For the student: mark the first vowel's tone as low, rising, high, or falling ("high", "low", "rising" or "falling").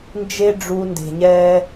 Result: high